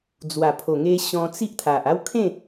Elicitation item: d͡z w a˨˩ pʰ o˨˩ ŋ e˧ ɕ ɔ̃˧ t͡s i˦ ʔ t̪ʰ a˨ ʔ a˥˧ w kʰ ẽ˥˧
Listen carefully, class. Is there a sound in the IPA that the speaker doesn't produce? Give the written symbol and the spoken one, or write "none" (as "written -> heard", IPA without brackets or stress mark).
none